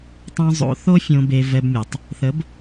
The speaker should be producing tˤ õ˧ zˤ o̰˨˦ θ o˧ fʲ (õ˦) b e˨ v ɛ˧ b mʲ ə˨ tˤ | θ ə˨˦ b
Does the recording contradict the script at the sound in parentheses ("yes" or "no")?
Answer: yes